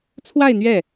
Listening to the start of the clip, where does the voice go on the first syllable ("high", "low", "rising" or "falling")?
falling